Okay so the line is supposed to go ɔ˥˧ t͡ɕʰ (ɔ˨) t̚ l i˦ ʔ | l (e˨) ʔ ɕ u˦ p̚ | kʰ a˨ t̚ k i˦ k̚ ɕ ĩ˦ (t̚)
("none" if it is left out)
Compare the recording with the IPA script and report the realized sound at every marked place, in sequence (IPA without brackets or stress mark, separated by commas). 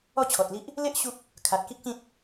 ɔ˨, e˦, t̚